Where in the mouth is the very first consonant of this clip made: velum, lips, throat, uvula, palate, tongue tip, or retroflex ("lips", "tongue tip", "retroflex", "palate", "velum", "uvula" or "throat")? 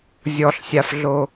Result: tongue tip